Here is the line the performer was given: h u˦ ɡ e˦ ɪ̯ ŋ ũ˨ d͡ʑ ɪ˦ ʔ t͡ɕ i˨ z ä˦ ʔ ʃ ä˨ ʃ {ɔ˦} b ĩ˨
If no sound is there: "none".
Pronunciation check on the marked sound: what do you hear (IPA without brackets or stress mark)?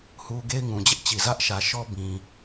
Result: ɔ˦